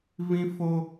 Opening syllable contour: high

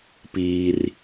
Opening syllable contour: high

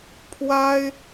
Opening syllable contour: high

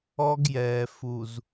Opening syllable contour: high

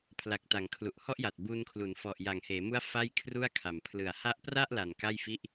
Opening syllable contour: low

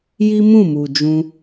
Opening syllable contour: high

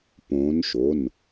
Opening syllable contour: rising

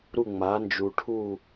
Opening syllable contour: falling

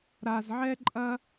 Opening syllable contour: low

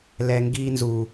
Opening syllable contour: low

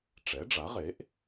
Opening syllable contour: rising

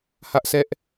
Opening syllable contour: high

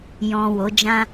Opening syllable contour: low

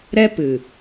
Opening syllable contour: high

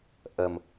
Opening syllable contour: low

